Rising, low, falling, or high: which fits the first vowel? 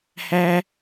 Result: high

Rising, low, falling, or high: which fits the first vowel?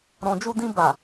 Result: low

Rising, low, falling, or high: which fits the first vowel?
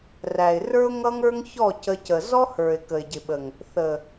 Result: low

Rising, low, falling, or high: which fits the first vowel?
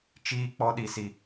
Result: high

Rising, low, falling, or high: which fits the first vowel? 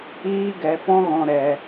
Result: high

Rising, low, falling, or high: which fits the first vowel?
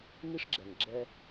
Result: high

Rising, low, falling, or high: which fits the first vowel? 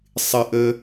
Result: low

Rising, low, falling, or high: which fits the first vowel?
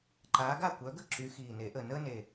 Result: rising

